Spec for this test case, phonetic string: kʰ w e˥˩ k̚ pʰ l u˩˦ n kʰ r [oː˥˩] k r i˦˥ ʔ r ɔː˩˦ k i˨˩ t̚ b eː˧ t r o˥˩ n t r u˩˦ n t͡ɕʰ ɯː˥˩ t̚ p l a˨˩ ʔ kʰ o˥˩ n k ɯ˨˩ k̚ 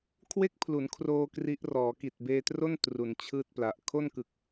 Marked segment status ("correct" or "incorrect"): incorrect